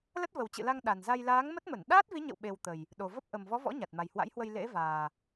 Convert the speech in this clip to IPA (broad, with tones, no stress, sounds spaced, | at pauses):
l ə˦˥ t̚ v ə˨˩ w t͡ɕ ɨ̰˧˨ l a˧ ŋ ɗ a˨˩ n z a˧ j l aː˨˦ ŋ m ə˦˥ t̚ m ə˧˩ n ɗ aː˦˥ t̚ v i˨˦ ɲ ə̰˧˨ w ɓ e˨˩ w t̪ ə˨˩ j | ɗ o˨˩ v ə˦˥ p̚ ʔ ə˨˩ m v ɔ˨˦ v ɔ̰˧˥ ɲ a˨˩ t̚ m a˨˩ j h w a̰˧˥ j h w ə˧ j l ḛ˧˥ v aː˨˩